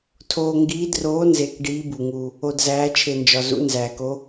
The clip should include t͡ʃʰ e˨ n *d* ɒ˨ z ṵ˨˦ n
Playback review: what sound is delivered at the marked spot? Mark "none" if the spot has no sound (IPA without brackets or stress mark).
d͡ʒ